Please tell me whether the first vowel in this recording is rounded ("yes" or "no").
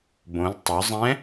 yes